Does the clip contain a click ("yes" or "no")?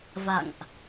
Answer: no